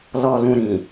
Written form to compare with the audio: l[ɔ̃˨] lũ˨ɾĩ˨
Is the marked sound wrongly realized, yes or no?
yes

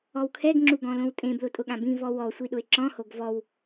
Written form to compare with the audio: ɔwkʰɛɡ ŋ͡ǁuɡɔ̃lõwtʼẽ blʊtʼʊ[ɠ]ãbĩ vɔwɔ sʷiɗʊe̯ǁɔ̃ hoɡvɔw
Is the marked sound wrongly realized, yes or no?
no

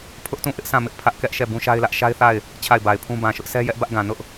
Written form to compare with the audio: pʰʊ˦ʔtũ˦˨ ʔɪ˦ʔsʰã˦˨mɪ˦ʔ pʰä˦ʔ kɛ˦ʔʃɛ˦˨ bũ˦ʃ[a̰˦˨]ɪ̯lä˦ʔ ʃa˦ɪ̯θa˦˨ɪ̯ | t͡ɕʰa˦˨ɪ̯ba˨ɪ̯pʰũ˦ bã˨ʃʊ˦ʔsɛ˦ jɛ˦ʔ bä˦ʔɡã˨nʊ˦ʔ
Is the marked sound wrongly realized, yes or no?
yes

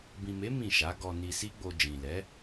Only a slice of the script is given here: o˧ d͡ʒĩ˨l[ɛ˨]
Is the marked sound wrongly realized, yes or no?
yes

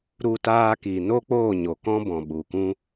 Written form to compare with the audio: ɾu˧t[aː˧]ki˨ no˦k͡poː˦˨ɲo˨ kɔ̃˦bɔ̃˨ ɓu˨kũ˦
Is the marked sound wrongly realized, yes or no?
no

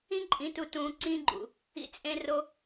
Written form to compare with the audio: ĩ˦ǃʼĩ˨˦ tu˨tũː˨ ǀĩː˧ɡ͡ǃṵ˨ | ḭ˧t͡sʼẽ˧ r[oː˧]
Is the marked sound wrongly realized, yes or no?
yes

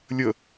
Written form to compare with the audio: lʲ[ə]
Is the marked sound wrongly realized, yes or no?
no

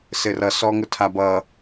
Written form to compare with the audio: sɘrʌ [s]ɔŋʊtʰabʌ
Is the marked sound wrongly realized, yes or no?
no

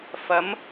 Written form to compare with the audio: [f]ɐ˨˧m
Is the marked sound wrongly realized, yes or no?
no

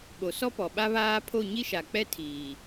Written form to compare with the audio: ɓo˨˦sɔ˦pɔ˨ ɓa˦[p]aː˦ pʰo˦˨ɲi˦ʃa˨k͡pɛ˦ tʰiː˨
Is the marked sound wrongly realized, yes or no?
yes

